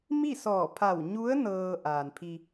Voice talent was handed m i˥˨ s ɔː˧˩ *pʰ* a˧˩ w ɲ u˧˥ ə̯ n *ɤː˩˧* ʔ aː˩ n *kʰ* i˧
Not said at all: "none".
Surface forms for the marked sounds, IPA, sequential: pʰ, ɤː˧, pʰ

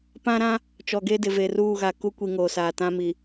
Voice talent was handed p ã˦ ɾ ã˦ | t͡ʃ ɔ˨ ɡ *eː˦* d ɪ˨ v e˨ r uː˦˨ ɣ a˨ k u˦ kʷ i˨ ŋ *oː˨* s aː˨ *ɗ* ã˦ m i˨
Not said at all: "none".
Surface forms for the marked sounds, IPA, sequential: e˦, oː˨, t

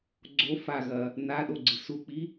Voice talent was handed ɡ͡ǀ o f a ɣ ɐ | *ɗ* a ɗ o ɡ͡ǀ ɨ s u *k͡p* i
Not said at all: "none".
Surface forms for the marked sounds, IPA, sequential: n, k͡p

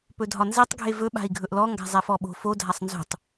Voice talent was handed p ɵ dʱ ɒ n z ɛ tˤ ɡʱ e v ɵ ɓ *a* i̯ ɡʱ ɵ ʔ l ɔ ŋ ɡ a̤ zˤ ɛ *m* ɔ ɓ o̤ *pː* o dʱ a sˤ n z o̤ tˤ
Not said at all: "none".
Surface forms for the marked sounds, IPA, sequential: a̤, f, f

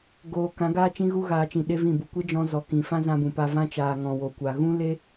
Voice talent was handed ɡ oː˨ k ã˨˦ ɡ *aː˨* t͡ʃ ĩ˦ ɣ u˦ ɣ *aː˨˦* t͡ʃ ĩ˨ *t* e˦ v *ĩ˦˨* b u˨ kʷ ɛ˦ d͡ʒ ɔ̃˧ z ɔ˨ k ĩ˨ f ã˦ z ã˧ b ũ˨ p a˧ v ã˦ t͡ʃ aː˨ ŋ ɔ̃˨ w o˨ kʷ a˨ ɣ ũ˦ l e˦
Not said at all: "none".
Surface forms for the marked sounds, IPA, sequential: aː˦, aː˧, ɗ, ĩ˦˨

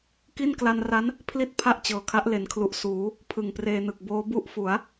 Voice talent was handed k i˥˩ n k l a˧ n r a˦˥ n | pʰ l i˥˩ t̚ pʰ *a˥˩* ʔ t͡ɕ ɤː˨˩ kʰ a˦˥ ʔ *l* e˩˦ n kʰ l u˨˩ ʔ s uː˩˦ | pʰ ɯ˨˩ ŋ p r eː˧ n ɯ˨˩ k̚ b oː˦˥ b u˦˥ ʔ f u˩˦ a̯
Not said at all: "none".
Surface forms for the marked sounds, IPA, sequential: a˥˩, l

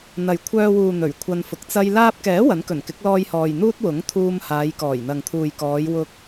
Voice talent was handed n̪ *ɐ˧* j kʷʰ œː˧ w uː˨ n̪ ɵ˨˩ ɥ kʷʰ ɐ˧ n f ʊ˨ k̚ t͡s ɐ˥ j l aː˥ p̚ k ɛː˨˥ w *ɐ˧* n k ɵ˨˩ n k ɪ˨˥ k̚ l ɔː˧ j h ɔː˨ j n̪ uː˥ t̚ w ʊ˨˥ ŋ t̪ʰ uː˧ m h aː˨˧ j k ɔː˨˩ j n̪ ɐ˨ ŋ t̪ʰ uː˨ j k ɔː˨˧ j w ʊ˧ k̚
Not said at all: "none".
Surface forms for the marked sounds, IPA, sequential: ɐ˨, ɐ˨˥

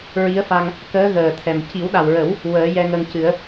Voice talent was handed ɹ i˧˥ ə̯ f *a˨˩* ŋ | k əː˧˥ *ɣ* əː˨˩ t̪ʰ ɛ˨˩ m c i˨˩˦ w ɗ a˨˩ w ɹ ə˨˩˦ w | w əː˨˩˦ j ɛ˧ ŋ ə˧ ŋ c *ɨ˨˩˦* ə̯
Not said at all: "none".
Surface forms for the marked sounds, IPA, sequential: a˧, ɣ, ɨ˨˩˦

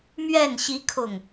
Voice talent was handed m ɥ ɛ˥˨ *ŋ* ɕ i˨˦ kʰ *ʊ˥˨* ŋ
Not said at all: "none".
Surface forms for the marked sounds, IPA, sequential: n, ʊ˨˩

